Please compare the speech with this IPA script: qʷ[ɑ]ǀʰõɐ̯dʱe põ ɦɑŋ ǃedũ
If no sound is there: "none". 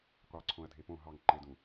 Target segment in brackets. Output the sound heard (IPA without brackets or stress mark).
ɑ